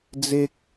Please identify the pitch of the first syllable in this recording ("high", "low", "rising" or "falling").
high